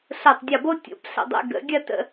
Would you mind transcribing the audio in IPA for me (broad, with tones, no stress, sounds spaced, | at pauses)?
ɬ o˧˩ tˤ dʲ ɔ˧˩ b o˥ tʲ o̰˩˧ p ɬ ə̰˧˩ dˤ ɛ̰˧ ɡ ə̰˩˧ ɡʲ ɐ˥˧ t ə̰˧˩